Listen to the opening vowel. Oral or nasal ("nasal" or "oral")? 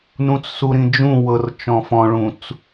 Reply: nasal